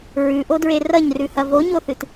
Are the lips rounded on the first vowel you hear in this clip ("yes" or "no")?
yes